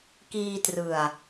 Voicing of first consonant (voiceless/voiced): voiceless